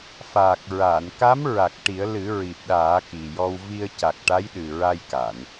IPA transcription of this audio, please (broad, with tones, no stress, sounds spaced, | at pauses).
f aː˨˩ k̚ ɹ aː˨˩˨ n k a˧˥ m ɹ a˨˩ k̚ ʈ i˨˩˦ ə̯ l ɨ˨˩˦ ɹ i˨˩ p̚ ɗ aː˨˩˦ k i˨˩ j ɔ˧ w v i˧ ə̯ c a˨˩ k̚ ʈ a˧˥ j ɗ ɨ˨˩ ɹ a˧ j k a˨˩˨ n